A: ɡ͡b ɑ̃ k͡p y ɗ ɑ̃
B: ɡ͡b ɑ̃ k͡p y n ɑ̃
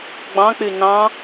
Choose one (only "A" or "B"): B